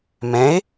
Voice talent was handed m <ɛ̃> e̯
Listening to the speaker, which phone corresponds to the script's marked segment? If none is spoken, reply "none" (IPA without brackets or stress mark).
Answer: ɛ̃